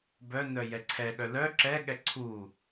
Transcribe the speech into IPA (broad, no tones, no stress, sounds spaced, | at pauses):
b œ n œ j ɛ ǀʰ ɛ ɠ œ l œ ǁ ɛ ɠ ɛ ǀʰ u